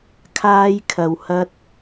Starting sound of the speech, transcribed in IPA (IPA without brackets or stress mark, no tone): kʰ